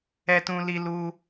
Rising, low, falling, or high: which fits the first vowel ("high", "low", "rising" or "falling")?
high